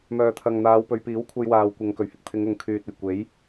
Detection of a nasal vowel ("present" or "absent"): absent